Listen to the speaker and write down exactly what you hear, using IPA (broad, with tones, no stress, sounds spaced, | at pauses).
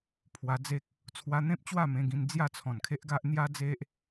pʰ w a˧ d͡z e˦ k̚ | t͡sʰ w a˧ n̪ ẽ˦ p̚ t͡ɕ w a˥˧ m ẽ˧ ɡ ĩ˧ n d͡z j a˥˧ t͡sʰ ɔ̃˨˩ n kʰ e˦ ʔ ɡ a˦ ʔ n̪ j a˦ d͡z e˦ ʔ